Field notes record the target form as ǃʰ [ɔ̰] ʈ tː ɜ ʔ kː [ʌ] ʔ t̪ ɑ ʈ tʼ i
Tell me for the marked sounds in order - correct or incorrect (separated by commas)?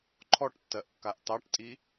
incorrect, incorrect